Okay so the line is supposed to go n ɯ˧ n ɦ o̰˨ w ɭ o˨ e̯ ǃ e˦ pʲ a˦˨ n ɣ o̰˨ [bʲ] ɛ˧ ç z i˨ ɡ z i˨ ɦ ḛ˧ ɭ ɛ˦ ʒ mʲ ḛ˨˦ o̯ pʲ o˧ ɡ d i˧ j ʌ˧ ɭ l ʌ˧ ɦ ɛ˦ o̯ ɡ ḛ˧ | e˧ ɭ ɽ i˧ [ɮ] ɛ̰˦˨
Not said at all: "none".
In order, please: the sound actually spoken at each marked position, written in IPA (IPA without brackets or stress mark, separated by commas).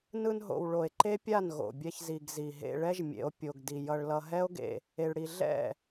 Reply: bʲ, ɮ